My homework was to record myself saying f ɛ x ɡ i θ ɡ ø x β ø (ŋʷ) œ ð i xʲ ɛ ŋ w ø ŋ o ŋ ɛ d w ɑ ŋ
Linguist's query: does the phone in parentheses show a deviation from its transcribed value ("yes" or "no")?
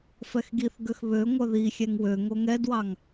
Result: no